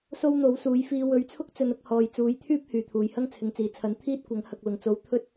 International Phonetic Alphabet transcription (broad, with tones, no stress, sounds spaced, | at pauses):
s o˥ w n̪ o˨˥ w s uː˨˧ j f iː˧ w ɵ˨˥ ɥ t͡sʰ ʊ˥ k̚ t͡s ɵ˧ n ʊ˥ k̚ h ɔː˨ j t͡s uː˨˥ j t̪ʰ yː˥ p̚ h yː˨˩ t̪ʰ uː˨˩ j h ɐ˥ ŋ t͡sʰ ɪ˨ ŋ t͡s iː˨˩ t͡sʰ ɐ˨˥ n t̪ʰ iː˥ t̚ kʷ ɐ˨˥ ŋ h ɐ˨ k̚ l ʊ˨˩ ŋ t͡s o˨˥ w t̪ʰ ɵ˥ t̚